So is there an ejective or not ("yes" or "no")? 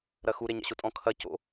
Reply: yes